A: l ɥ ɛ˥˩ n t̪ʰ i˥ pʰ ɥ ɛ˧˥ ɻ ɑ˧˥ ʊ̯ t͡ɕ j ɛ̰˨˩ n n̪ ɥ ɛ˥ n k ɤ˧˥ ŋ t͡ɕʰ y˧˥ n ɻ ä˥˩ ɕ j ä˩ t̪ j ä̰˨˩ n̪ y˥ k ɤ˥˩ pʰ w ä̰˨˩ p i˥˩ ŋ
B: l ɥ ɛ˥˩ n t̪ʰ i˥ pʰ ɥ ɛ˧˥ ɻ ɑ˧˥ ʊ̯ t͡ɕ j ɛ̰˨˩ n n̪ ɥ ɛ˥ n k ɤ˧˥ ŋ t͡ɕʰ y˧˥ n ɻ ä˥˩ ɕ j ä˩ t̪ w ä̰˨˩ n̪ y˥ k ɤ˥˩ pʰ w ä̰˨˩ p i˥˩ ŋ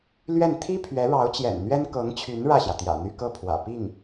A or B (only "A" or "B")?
A